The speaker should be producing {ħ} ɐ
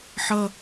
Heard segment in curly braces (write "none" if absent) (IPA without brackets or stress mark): ħ